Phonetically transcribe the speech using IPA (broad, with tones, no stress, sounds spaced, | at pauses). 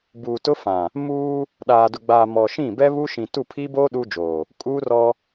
b uː˨ t ʊ˦ f ã˨ | m uː˦ | ɗ aː˨ d ʊ˨ ɡ͡b aː˨ m ɔ˨ ʃ ĩ˦˨ b ɛ˦ β u˦ ʃ ĩ˨ t u˦˨ pʰ i˦ b oː˦ ɗ u˦ d͡ʒ oː˨ | kʼ uː˦ r ɔ˦